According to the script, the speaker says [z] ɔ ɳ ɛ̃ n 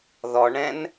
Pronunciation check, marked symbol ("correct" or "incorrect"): incorrect